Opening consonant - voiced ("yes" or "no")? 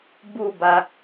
yes